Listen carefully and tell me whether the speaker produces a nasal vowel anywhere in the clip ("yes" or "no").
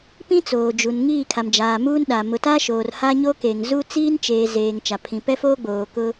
yes